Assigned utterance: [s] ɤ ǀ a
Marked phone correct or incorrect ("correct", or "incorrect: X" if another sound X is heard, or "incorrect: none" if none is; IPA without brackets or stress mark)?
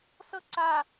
correct